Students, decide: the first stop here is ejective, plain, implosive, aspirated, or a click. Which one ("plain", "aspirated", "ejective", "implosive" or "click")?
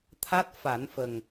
aspirated